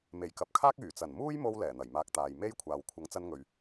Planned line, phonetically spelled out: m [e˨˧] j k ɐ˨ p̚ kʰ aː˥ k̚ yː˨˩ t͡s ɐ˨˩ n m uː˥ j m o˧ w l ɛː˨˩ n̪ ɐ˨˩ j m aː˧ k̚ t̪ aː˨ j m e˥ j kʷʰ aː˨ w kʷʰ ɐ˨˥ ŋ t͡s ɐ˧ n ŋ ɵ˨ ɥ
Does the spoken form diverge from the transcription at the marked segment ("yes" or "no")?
yes